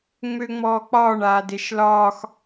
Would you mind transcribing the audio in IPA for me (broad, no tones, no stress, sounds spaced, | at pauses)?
ŋ͡m ø ŋ͡m ɔː k͡p ɒː ɳ aː d e ʃ l ɒː x